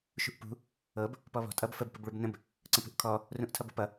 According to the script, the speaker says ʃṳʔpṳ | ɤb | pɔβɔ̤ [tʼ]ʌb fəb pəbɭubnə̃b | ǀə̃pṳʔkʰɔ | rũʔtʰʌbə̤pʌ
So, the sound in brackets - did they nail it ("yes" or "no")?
yes